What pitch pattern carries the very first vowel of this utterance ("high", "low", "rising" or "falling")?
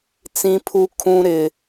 high